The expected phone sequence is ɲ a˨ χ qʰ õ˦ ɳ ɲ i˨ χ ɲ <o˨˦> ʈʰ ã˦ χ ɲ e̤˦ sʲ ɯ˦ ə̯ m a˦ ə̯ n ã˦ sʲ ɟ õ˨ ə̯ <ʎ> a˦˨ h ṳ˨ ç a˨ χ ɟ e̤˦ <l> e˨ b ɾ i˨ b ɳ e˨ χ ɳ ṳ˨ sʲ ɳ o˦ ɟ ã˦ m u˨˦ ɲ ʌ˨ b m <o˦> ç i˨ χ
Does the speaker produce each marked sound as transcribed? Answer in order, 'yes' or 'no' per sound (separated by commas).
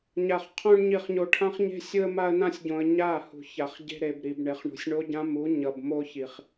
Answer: no, no, no, yes